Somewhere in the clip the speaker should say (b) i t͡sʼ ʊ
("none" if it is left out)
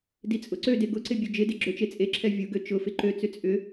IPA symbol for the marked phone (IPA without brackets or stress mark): d